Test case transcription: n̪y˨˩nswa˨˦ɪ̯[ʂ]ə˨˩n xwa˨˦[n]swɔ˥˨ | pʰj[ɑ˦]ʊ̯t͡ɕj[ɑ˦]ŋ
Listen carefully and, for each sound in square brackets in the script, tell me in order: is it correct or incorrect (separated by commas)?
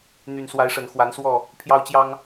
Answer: correct, correct, correct, correct